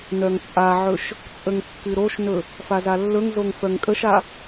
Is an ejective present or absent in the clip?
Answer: present